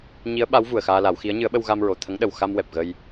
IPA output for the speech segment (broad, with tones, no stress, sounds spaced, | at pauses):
ɲ i˧˥ ə̯ ɓ a˧˥ w v u˨˩ ə̯ x aː˧ l a˨˩˦ w x i˧˥ ə̯ ɲ ɨ˧˥ ə̯ ɓ ə˧ w ɣ a˧ m ɹ o˨˩ t̪ʰ ə˧˥ ŋ ɗ ə˨˩ w x a˧ m w ɛ˨˩ p̚ ɣ ə˧ j